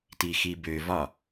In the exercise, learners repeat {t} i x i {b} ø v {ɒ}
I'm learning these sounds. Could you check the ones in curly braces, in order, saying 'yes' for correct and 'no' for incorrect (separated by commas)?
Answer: yes, yes, yes